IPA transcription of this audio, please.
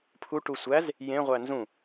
pʰ u ʈ u sʷ æ z | j ẽ ʁʷ æ n z ũ

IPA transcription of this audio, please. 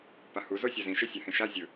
p a h u z o sʲ a z ĩ ʃ e sʲ a h ẽ ʃ a zʲ ɯ

